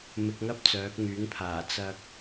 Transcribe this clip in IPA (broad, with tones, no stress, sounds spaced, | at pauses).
m ɪ˧ k̚ ŋ ɐ˥ p̚ t͡s œː˨˥ k̚ ŋ yː˨˥ ŋ pʰ aː˨˩ t͡s ɐ˧ k̚